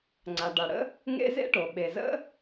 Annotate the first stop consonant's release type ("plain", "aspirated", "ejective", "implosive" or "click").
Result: click